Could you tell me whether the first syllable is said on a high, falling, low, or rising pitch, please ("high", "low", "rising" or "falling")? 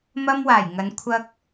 high